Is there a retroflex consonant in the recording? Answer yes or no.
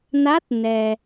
no